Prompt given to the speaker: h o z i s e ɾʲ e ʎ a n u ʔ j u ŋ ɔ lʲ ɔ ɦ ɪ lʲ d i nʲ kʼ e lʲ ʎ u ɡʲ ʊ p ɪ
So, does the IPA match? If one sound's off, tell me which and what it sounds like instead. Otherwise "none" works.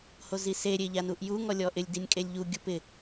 ɦ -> ʔ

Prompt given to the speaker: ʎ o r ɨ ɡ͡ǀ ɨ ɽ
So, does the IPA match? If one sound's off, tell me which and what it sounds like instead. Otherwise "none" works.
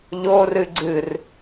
ɽ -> r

